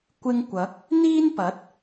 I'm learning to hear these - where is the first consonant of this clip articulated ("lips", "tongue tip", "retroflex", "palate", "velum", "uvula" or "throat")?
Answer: velum